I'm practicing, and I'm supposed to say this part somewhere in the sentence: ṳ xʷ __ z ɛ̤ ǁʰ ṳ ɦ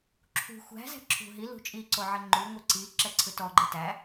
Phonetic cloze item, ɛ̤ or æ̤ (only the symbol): æ̤